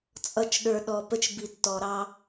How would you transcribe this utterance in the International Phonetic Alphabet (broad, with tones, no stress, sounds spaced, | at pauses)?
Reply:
t͡sʼ ʌ˦˨ t͡ʃ ɗ ə˞˧ ɗ ɔ˧ p ə˦ t͡ʃ b i˧ tː ɔ˧ ɾ ɑ˦